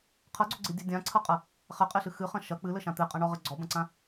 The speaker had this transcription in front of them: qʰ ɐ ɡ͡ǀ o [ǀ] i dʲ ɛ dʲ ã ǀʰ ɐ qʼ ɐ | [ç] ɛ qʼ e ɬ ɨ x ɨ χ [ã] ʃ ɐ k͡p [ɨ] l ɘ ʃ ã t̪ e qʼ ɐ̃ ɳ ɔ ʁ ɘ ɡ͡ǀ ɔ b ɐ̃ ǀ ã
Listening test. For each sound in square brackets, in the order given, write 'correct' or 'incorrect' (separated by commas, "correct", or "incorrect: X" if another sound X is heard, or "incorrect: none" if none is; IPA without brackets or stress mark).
incorrect: ɡ͡ǀ, incorrect: χ, incorrect: ɐ̃, correct